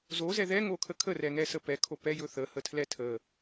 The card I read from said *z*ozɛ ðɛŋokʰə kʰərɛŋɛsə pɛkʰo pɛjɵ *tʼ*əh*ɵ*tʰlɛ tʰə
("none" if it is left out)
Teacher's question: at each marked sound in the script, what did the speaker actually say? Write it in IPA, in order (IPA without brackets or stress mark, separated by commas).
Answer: z, θ, ə